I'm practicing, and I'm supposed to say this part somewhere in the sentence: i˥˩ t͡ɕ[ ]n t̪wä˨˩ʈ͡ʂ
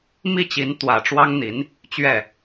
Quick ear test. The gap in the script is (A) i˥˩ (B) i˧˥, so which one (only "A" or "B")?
B